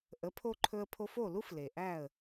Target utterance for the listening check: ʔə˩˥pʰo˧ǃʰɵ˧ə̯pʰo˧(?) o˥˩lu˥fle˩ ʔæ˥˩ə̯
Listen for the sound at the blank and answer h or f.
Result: f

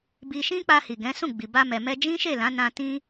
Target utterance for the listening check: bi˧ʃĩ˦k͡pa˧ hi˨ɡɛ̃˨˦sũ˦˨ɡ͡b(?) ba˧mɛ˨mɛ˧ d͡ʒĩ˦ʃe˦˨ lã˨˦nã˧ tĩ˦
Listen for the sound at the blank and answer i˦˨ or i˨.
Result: i˨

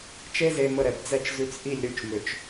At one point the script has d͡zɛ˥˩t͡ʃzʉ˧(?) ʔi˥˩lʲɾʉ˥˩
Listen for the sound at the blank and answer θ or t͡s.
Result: t͡s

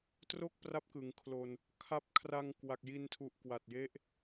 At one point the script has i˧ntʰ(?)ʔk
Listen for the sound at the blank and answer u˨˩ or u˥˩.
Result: u˨˩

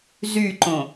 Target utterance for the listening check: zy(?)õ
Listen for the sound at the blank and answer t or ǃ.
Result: ǃ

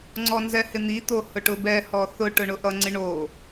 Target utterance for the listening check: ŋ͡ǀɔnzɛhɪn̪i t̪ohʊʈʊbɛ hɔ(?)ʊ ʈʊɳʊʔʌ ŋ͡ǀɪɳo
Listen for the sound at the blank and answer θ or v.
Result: θ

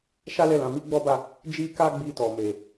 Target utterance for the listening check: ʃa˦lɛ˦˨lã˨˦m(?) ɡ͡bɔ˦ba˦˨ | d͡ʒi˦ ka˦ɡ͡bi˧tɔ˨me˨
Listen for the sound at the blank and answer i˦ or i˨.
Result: i˦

